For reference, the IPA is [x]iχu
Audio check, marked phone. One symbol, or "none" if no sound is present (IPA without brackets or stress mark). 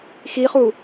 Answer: x